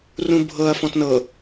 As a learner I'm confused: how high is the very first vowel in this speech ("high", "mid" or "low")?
high